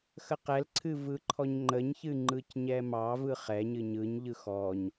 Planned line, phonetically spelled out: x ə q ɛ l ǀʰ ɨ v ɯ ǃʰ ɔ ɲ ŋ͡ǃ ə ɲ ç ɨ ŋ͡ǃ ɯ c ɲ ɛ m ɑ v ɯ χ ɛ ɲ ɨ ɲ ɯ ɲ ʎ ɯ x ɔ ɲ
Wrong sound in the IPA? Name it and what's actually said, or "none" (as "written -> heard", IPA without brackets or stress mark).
none